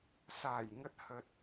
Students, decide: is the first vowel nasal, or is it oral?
oral